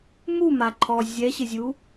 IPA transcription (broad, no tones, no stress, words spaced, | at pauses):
mumaǃʰɔ zʲɛɕɪzʲu